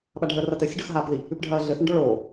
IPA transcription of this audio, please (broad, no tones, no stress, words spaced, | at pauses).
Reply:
ɓaɖʱəːrɐtɘ sʲəɖœxɦaːpði | ʉpɖʱɐːɮɘ θɐɳɖɔɭoː